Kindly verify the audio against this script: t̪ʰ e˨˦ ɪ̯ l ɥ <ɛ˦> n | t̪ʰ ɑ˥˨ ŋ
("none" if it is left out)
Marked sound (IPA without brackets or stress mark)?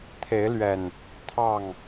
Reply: ɛ˨˩